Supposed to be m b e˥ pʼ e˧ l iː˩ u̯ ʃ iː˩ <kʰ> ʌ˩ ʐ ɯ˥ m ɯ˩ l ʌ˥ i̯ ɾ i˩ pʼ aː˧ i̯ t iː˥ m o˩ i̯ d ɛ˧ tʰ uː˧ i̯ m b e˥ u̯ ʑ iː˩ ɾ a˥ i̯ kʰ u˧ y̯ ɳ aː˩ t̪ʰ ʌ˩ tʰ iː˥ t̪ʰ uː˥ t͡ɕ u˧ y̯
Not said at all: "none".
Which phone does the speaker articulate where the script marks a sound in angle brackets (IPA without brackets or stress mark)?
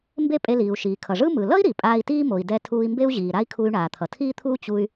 kʰ